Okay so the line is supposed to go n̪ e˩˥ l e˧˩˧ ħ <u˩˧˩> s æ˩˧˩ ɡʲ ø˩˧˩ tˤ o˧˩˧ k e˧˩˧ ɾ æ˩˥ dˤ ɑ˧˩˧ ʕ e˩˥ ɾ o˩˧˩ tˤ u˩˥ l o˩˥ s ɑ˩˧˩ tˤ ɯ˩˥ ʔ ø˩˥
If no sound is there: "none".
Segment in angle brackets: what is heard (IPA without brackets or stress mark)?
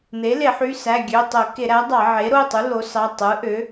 y˩˧˩